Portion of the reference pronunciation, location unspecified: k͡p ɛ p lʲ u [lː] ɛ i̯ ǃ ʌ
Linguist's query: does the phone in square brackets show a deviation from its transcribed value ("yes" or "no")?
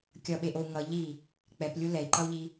yes